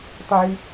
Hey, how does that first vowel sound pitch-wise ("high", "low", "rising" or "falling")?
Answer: low